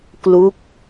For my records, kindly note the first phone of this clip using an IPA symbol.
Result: k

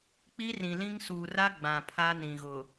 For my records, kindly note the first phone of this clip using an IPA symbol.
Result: k͡p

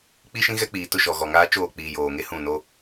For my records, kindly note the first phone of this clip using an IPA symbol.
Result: k͡p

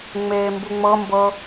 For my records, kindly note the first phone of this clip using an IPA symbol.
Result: ŋ͡m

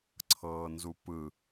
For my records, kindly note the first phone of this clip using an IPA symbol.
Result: ǀʰ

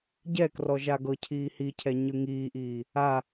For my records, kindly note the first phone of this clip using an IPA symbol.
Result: ɟ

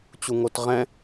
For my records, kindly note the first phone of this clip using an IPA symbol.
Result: t͡ɕ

